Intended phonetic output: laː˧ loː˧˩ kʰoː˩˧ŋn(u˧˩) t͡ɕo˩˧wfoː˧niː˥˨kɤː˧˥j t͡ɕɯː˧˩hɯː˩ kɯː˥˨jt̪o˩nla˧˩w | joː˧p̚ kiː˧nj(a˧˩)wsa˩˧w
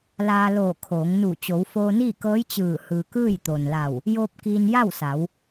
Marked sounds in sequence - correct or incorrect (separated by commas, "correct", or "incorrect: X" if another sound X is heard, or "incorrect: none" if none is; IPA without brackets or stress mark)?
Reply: correct, incorrect: a˥˨